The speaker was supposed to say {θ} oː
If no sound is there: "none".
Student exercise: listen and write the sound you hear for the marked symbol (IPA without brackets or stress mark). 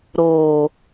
ɾ